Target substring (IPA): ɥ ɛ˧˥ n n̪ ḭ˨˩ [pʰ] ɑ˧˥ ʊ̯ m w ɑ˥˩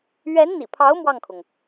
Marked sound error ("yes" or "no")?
no